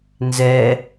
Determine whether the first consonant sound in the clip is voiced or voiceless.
voiced